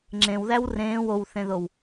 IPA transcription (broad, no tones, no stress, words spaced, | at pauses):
ŋ͡ǁẽwðæw rẽːw owθẽðow